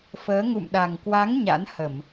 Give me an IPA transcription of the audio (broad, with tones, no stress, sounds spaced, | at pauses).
f əː˨˦ ŋ ṵ˧˨ m ɗ a˨˩ ŋ k w a˨˦ ŋ ɲ a̰˧˥ n h ə˧˩˨ m